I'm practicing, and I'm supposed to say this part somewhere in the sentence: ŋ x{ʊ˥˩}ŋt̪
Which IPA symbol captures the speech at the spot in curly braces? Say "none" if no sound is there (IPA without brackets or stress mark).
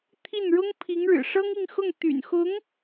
ʊ˥˩